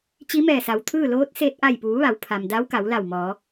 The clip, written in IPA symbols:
t͡ɕ i˧˥ m ɛː˧˩ s a˩˧ w t̪ʰ ɯː˥˨ l oː˧˥ t̚ s eː˧ t̚ ʔ a˧˩ j p uː˩˧ ʋ a˩˧ w pʰ a˩ m d a˧˥ w k a˩˧ w l a˧˩ w m ɔː˩˧

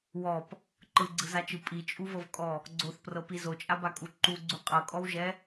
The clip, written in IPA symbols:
w ɔ p | ǃ ɯ ɡ͡ǀ ɯ z a t͡ʃ ɯ pʼ i t͡ʃʼ u v ɤ v kʼ ɔ | ɡ͡ǀ o θ p r ɤ p i z o t͡ʃʼ a b a kʼ u ǃ u ɡ͡ǀ u qʼ ɤ kʼ ɔ w ʒ ɛ

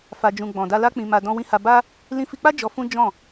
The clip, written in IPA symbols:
f a˧ d͡ʒ ũ˧ ɡ͡b ɔ̃˨ d a˧ l a˦ k͡p ĩ˧ m a˧ d ɔ̃˧ w ĩ˧ h a˧ b a˦ | l ĩ˧ f i˧ k͡p a˦ d͡ʒ ɔ˧ f ũ˦ d͡ʒ ɔ̃˦˨

